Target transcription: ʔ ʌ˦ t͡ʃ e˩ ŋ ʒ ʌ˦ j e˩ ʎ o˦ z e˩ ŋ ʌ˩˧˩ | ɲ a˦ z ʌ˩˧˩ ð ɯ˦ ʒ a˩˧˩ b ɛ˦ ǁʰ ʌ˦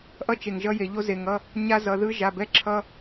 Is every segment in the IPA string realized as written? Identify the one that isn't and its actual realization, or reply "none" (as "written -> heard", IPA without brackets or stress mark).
none